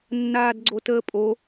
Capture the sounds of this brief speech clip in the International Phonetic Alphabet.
nː aː d ɡ͡ǀ o t əː pʼ o

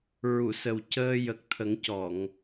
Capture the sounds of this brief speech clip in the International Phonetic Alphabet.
ɹ u˨˩˨ s ə˨˩ w c əː˧ j ə˨˩ k̚ t̪ʰ ə˨˩˦ ŋ c ɔ˨˩˨ ŋ

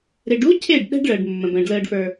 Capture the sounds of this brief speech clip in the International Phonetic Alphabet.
ɾ e˨ ɖ u˦ cʰ e˦˨ ɖ ɗ ɛ̤˦ ɖ ɭ əː˨ ɖ mː ə̃˨ b ə̃ː˨ ɖ l əː˧ ɖ f ə˞˧

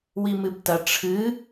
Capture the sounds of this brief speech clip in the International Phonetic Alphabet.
w i m ɨ b t ɐ ʈ͡ʂʰ ɨ

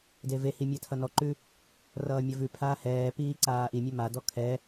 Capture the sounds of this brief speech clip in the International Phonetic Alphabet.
d e v e h i mʲ ɛ tʰ ʌ n ɔ ǃ ʉ | r ʌː mʲ ɐ v ʉ pʰ aː h ɛː p iː ǀ aː ʔ i mʲ ɛ m a d ɔ kʰ ɛ

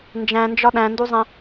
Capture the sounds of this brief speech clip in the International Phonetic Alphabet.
n d͡ʒ æ̃ n d͡ʒ ɒ ɗ æ̃ n d u zˤ ẽ

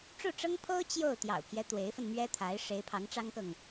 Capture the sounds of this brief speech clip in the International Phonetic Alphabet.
ʈ͡ʂ u˥˩ ʈ͡ʂ ɤ˥ ŋ pʰ o˥ ʊ̯ t͡ɕ j o˥˩ ʊ̯ t̪ j ɑ̰˨˩ ʊ̯ pʰ j ɛ˦ t̪ w e˧˥ ɪ̯ f ə˧ n m ɥ ɛ˥ t̪ʰ a˧˥ ɪ̯ ʂ e˧˥ ɪ̯ pʰ ɑ˧˥ ŋ ʈ͡ʂ ɑ˥ ŋ k ɤ˨ ŋ

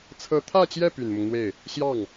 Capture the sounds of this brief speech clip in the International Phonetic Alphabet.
t͡sʰ ɤ˧˥ t̪ʰ ä˥˧ t͡ɕ j ɛ˥˩ p y˨˩ n m ʊ˦ ŋ n̪ w e˥˩ ɪ̯ | ɕ j ɑ˥˩ ŋ

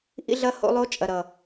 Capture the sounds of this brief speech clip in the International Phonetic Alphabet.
ʔ ḭ˦ ɮ ɐ˦ h o̰˧ lˠ o˧ t͡ʃʼ ɐ˨ ɾ ʌ˨

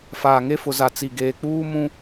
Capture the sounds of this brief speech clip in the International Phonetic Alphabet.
f aː˨ ŋ e˦ f ʊ˨ z a˨ t͡s i˨ ɡ eː˨ k͡p uː˦ m ũ˦

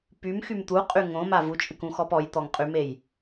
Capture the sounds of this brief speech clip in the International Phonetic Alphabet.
p y m x y m t̪ u qʼ y ŋ õ m a v u t͡ʃʼ ɨ k ũ x ɔ p ɔ j t̪ ɔ ŋ qʼ y m e j

